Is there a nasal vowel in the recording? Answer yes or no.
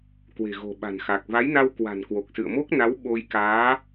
no